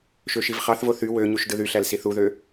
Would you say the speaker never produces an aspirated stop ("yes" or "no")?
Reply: yes